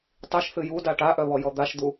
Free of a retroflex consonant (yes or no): no